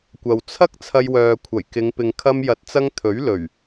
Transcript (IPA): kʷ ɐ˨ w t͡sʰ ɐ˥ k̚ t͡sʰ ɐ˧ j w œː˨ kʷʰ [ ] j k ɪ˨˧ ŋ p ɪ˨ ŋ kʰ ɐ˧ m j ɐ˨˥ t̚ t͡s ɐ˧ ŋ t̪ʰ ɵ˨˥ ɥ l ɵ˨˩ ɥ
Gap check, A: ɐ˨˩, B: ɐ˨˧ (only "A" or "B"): A